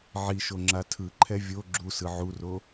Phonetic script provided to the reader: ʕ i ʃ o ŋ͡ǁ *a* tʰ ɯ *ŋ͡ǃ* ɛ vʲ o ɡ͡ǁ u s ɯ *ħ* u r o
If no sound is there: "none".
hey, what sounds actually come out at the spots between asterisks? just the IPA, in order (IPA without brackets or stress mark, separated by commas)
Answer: a, ǃʰ, ʕ